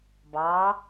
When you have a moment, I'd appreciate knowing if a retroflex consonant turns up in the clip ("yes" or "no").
no